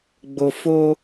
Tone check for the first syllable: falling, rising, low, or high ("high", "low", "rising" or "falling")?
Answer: low